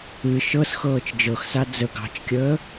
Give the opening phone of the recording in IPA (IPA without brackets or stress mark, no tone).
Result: ɨ